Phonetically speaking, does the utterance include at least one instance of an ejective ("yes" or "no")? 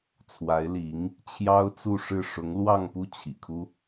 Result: no